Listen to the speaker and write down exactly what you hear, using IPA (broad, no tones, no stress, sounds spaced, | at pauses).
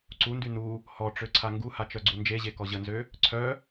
ǀ u n d y n u | h ɔ ʈ͡ʂ ø ǀʰ a ŋ ɡ u h a t͡ʃ œ ɡ͡ǀ u n d͡ʒ e ʑ e k ɔ ʑ ə n z ø | ǀʰ œ